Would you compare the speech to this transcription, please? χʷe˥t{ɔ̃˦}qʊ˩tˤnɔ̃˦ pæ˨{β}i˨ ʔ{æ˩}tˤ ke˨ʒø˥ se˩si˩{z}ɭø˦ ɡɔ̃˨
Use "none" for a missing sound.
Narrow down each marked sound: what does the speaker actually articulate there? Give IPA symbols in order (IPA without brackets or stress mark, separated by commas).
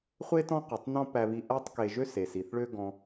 ɔ̃˦, β, æ˦, θ